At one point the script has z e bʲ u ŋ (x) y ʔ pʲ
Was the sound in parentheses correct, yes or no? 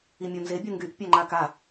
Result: no